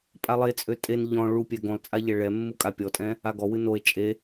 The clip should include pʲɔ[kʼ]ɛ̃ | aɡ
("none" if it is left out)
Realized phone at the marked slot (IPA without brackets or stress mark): tʼ